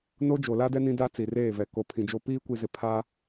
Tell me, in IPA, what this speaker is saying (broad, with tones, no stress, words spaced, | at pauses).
no˦ d͡ʒo˨la˦dɛ˦ nĩ˦da˦ t͡si˨reː˦˨vɛ˨ ko˨pʰĩ˨d͡ʒo˦ piː˦kʷi˨zɪ˨ pʰa˦